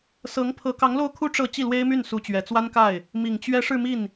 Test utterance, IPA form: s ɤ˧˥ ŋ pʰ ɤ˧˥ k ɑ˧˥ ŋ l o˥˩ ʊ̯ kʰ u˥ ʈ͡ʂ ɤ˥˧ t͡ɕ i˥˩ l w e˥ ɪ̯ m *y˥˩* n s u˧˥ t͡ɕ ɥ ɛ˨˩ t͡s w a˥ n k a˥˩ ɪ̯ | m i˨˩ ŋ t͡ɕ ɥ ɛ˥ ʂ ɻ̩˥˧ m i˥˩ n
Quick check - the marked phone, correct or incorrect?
correct